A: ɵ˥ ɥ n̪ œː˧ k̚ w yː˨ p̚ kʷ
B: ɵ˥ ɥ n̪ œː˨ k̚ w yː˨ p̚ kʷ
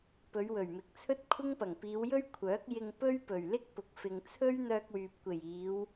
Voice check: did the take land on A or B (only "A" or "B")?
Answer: A